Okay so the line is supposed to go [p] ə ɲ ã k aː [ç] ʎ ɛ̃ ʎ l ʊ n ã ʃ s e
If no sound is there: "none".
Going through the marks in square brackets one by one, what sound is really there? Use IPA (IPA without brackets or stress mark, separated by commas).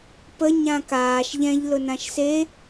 p, ʃ